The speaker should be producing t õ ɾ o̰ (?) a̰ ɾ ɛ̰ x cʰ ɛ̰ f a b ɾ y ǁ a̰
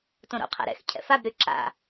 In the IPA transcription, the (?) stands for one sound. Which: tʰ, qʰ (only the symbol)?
qʰ